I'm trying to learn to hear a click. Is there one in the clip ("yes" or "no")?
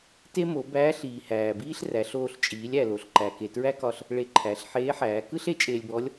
yes